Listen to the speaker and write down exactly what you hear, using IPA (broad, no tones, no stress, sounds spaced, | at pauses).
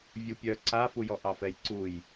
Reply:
vʲ u pʲ œ ǀ a f u j ɔ ʔ ɑ f ɛ j ǀ u j